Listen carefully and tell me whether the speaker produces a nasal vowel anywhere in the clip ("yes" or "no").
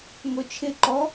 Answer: no